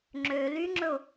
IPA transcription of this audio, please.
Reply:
ŋ͡ǁ ø l y ŋ͡ǁ ɵ ʊ̯

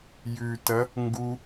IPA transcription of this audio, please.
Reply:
j ʉ t ɐ | ŋ ɡ u

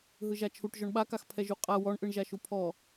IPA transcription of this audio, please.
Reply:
ɦ ɯ ʒ a t͡ʃʰ u ʈ ʒ ɔ ɳ ɓ a k a x pʰ ɛ ʒ u qʼ a w ɔ ɳ ʔ ɯ ɳ ʒ a ʃ u pʰ ɔ

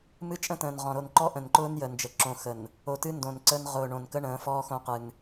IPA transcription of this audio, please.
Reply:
m ɨ˦ t͡ʃʼ ə̃˦ t ə̃ː˨ n ʁ ɔ̃˨ ɾ o˨ n ǃ ɔ˦ ʔ ə̃˨ n ǃ ʊː˦ n j ə˨ n d͡ʒ ə˨ ǁ õ˨ x ə˨ n | o˨ t ɨ˦ n d õ˨ n ǀ ə˦ n ʁ ʊː˨ ɳ õ˨ n k ə˦ ɳ ə̃ː˨˦ f ɔː˦ x õ˦ q ɨ˨ n

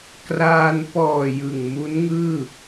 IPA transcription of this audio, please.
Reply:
k r aː˧ n p ɔː˨˩ j ɯ˨˩ ŋ m u˦˥ n ŋ ɯː˥˩

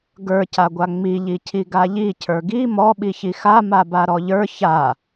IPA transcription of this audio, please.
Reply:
ɡ ə˞ c a ɡʷ a ŋ͡m i ʎ i cʰ i ɡ a ʎ i cʰ ə˞ ɡ i m ɔ ɓ i ç i x a m a b a ɾ ɔ ʎ ə˞ ç a

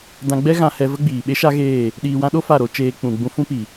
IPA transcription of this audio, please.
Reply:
d ã˧ ɡ͡b ɛ˦ ɣ ã˧ h ɛ˧ v ə˦ ɡ͡b iː˨ ɓ e˦ ʃ a˦ ɣ eː˦˨ | ɗ iː˨ w ã˧ ɗ o˦ f a˦˨ ɾ o˧ t͡ʃ eː˧ k͡p ũ˨ ɡ͡b ũ˧ f ũ˦ p i˨

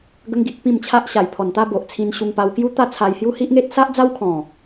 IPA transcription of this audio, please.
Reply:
ɡ ə˧ ŋ ɡ i˨ ʔ p ĩ˥˧ m t͡ɕʰ a˦ ʔ ɕ a˨˩ j pʰ ɔ˨˩ n t̪ a˦ b o˨ ʔ t͡sʰ ĩ˧ n ɕ u˧ ŋ p a˧ w k j u˦ t̪ a˥˧ t͡sʰ a˧ j h j u˦ h i˦ ʔ ŋ e˦ t̚ s a˦ ʔ d͡z a˦ w kʰ ɔ̃˨˩

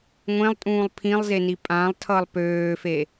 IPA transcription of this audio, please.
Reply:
ŋʷ ẽ lˠ tʼ ũː lˠ pʰ ĩ lˠ z e n i pʼ ã lˠ tʰ ʌ lˠ p øː f e

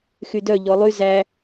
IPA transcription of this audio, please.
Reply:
x y d œ ʎ ɔ lˠ y z æ

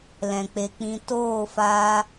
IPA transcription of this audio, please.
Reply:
l ɛ̃˨ k͡p e˨ k͡p ĩ˧ t oː˦˨ f aː˧

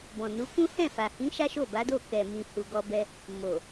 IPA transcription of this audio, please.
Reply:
b ɔ̃˨ n u˨˦ k ũ˦ h ɛ̃˦˨ f a˨ h ĩ˨˦ ʃ a˦ ʃ o˦˨ b a˨˦ d o˦˨ k ɛ˨ m ĩ˨ h u˨ ɡ ɔ˧ b ɛ˧ | m o˨

